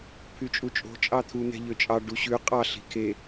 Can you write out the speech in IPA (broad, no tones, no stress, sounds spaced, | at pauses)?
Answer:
pʰ y t͡ʃʼ u t͡ʃʼ o̤ t͡ʃʼ ɑ t̪ʰ u n̪ ɛ̤ ʎ ø t͡ʃʼ ɑ ɖ u ɕ ʉ qʼ ɑ ɬ i̤ kʰ e